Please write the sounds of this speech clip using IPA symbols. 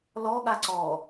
l ɔ ɠ a ǀ ɔ

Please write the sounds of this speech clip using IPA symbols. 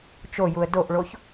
t͡ʃ o j u ə̯ d o ʔ ɭ o ç

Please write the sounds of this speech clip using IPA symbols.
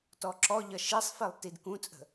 t ɔ ǁ ɔ ʎ ʌ ʃ i sˤ f i lˠ t i d k ũ t͡sʼ ə̤

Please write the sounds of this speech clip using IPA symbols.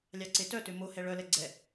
lʲ ɑ ǀ e t œ t ø m o h ɛ ɭ œ l ɛ ɡ͡ǀ ɛ

